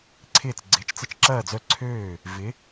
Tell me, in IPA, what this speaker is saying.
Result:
ǀʰ ɪː˥˩ t͡s ɡ͡ǀ ɪː˨˥ t͡ʃ t͡s ɪ˥˩ t͡ʃ ǁ ɐː˥˩ d͡z œ˥˩ ǀʰ øː˥˩ | v ɪ˨˥

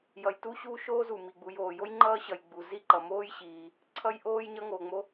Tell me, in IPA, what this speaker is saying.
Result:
j ʌ˩ j t u˥ ɕ uː˥ ʃ oː˥ z u˩ m i˩ ɡ͡b u˩ j oː˩ j o˥ j ŋ͡ǃ ʌː˥ ɕ ʌ˩ j ɡ͡b u˩ z i˥ ǃ ʌ˩ m oː˥ j ɕ iː˩ | ǀʰ ʌ˥ j ʔ oː˥ j ɲ ʌ˥ ŋ oː˩ ŋ͡m o˥

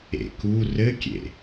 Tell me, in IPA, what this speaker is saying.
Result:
ḛ k u r ɘ kʲ ḛ

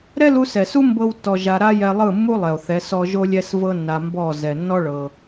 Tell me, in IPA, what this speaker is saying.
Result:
ɾ ɛ˦ l u˧ s ɛ˨ s u˦ m b ɤ˦ w tː ɔ˧ ʒ a˧ ɾ a˦ j ɛ˧ lˠ ɯ˦˨ mː u˦ lˠ ɛ˨ o̯ θ ɛ˨˦ s ɔ˦ ʒ o˦ lʲ ɛ˦ s v ɤ˦ nː a˧ m b ɔ˦˨ z ɛ˨ nː ɔ˦ ɭ ɤ˧

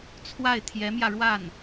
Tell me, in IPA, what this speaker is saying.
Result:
t͡sʰ w a˥˩ ɪ̯ t̪ʰ j ɛ˧˥ m j ä˧ ɻ w a˥˩ n

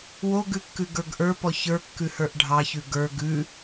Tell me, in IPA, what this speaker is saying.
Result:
w o ɡ ʉ kː ʉ ɡ ə˞ ɡ ʔ ə˞ p ɔ ç ə˞ kː ʉ h ə˞ ʔ ɖʱ ɑ ç ʉ ɡ ə˞ ɡ ʉ

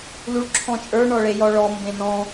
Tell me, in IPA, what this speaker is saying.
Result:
l u ɭ ǁʰ ɔ̃ t͡ʃʼ ə˞ ɳ ɔ ɭ e j ɔ ɭ ɔ m b ẽ n ɔ̃

